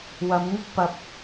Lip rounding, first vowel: unrounded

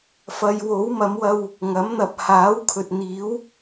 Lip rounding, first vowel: unrounded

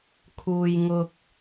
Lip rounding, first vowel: rounded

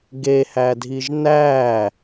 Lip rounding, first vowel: unrounded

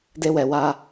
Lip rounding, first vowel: unrounded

